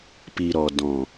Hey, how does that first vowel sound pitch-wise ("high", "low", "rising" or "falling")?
low